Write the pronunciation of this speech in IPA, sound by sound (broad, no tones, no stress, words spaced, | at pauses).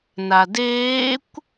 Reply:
nadeːkʷ